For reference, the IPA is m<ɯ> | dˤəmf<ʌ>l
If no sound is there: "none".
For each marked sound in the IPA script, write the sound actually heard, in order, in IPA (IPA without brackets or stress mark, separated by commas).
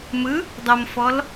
ɯ, ɔ